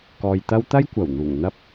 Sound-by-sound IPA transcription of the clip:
k ɔː˨ j t̪ ɐ˥ w t̪ ɐ˥ j kʷ ɐ˨˩ w n̪ uː˨˩ ŋ n̪ ɐ˧ p̚

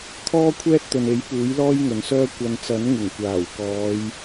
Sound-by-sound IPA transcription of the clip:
t̪ʰ ɔː˥ kʷʰ ɛː˥ t̚ t̪ ɵ˨ n e˨˥ j p uː˨˥ j l ɔː˥ j ŋ ɵ˨ n s œː˥ kʷ ɐ˧ n t͡s ɐ˨˥ n ŋ ɪ˨˩ ŋ kʷ aː˨˩ w k ɔː˨˧ j

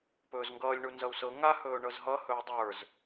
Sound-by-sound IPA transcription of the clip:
p ɵː z ŋ ɡ ʌː lʲ ɳ u n z ʌ u̯ s ɤ ŋ a h ɵː ɳ ɤ z ɦ ʌ h ɵː dˤ ə˞ z

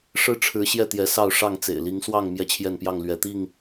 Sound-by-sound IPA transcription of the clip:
ʂ ɻ̩˦ ʈ͡ʂʰ ɻ̩˨˦ ɕ j ɛ˥˨ t̪ j ɛ˨˦ s ɑ˥˨ ʊ̯ ʂ ɑ˥˨ ŋ t͡s ḛ˨˩ ɪ̯ l i˨˦ ŋ s w ɑ˥˨ ŋ m j ɛ˥˨ t͡ɕʰ j ɛ˥˨ n p j ɑ˥˨ ŋ l ɥ ɛ˨˦ t̪ i˥˨ ŋ

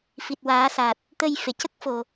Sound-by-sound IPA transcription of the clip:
f i˨˩ t̚ w aː˨˩˦ s a˨˩ t̚ | t̪ ə˧ j f e˨˩˨ c ə˦˥ k̚ f o˨˩

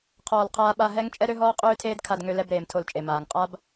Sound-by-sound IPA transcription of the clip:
qʰ ɔː˧ l qʰ aː˦ ɓ a˦ ɦ ɛ˦ ŋ t͡ʃʼ ɛ˦ ɾ ø˦ ɦ ɔː˦ qʼ øː˦ tʰ eː˦ d kʰ a˧ d ŋ ø˧ l ɛ˧ b ɾ eː˨ m tʰ o˧ l t͡ʃʼ e˨ m aː˨ ŋ qʼ a˦ b

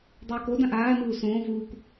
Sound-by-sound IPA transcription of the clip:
dˤ uː k o d ã ʔ aː n uː s õː v uː k

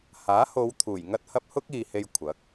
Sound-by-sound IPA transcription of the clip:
h aː˨˥ h o˨˧ w t̪ʰ uː˨˩ j ŋ ɐ˧ t̚ h ɐ˧ p̚ h ʊ˥ k̚ iː˨ h e˧ j kʷʰ ɐ˨˥ k̚

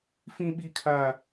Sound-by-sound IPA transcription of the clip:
f ĩ˦ ɓ i˦ kʰ a˦

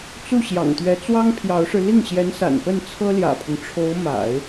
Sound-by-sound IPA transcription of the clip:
t͡s u˥˩ ɕ j ɑ̰˨˩ ŋ t̪ ɥ ɛ˧˥ t͡s w ɑ˥ ŋ pʰ j ɑ˧˥ ʊ̯ ʂ ɻ̩˧ l i˥˩ ŋ ɕ j ɛ˧˥ n s a̰˨˩ n p ə˥˩ n t͡sʰ ɤ˥ l j ä̰˨˩ pʰ ʊ˦ ŋ ʈ͡ʂʰ o˧˥ ʊ̯ m a̰˨˩˦ ɪ̯

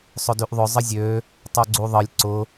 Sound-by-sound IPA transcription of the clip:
sˤ ʊ d y ʔ ðˤ ʊ zˤ ə zʲ ø | tˤ o ɡ͡ǀ u ðˤ ə lʲ ǀ ʊ

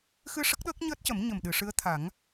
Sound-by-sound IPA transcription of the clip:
x ɨ˧ ʂ ə˦˥ k̚ ɗ əː˦˥ k̚ ɲ əː˦˥ t̚ c ə˨˩˦ m ɲ ə˨˩ m ɗ ɨ˨˩˨ ʂ ɨ˧˥ ə̯ t̪ʰ a˨˩˦ ŋ

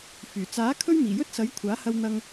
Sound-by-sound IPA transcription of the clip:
f yː˨˩ t͡s aː˨˥ kʰ ɵ˥ ɥ m iː˨˩ j ɵ˥ t̚ s ɐ˨˥ j kʷʰ aː˨˥ h ɐ˧ w n̪ ɐ˧ ŋ

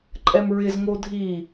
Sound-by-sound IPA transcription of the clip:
ǃʼ ɛ m ɹ ɪ z ŋ o dʱ i

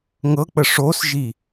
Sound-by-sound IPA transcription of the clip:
ŋ ɤ k͡p ə ʂ o s ʒ i

